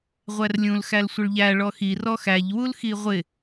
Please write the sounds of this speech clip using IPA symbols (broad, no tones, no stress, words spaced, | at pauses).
ʁʷærlʲũl xælsʷɪɭʎæ ɭɔxi rɔxæʎ wulxiʁʷɪ